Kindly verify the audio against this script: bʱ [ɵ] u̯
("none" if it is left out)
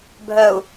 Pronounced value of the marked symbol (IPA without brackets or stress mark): œ